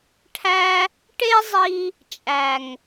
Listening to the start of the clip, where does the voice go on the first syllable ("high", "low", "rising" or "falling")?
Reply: high